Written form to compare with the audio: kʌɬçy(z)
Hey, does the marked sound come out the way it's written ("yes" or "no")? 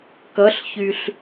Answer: no